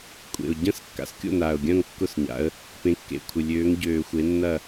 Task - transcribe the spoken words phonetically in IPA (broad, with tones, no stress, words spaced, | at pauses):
kʷʼḛ˨˩ʊ̯ ɟɐ̃˥˨s kːa̰˨˩skʲo̰˥˨naː˨˩ʊ̯ɡʲɐ̃ː˥˨ŋ kːʊ˥˨sɲa̰˨˦ə̯ | pẽ˨˦kːḛ˨˩kʷʰɪ˨˩ lʲøː˨˦ŋɟøː˨˩xʷe˨˦nːɐ˥˨